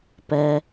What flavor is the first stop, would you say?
plain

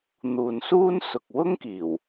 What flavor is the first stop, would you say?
plain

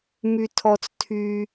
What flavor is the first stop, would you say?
aspirated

